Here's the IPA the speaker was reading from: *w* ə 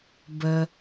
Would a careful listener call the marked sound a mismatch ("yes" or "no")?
yes